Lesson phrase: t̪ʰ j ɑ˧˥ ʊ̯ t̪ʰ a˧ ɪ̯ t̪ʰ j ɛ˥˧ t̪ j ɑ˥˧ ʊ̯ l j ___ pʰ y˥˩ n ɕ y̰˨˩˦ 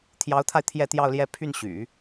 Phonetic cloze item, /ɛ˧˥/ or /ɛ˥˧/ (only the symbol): ɛ˥˧